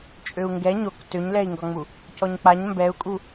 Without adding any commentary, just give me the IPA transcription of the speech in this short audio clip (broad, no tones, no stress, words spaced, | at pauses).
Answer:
t͡ʃʼøu̯ŋɡɛ ɲok tøɲlɛi̯ŋɡɒŋ͡mu | cɔɲk͡paɲ mbɛu̯kʼu